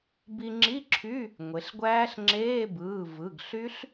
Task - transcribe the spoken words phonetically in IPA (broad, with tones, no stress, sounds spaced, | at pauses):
b i˧ ŋ͡ǁ i˧˥˧ ǁʰ y˧˥˧ | ŋʷ e˩˧ ɬ ɡʷ æː˦˥ ɬ ŋ͡ǁ eː˧˥˧ b ɯː˩˧˩ v ɯ˩˧˩ ɡ ɬ y˦˥ ɬ